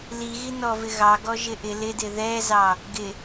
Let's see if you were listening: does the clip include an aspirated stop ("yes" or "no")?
no